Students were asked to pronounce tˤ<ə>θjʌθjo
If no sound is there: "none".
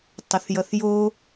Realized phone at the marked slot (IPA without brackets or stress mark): ə